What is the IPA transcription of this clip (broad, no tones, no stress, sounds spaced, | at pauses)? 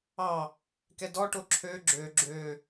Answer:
ɑ | k ɛ d ɔ ʈ o ǁʰ ø ɡ͡ǁ ø ɡ͡ǁ ø